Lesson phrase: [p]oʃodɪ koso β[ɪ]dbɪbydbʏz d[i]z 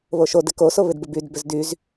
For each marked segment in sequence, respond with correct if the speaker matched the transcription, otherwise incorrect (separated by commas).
incorrect, correct, incorrect